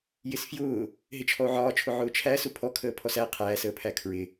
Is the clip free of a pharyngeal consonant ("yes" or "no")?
no